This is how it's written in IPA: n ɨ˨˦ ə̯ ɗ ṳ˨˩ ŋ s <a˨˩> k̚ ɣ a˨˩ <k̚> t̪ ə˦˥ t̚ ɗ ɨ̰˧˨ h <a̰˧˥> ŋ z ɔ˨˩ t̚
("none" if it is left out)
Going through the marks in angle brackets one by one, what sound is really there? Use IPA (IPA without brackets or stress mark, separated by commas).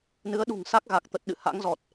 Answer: a˦˥, k̚, a̰˧˥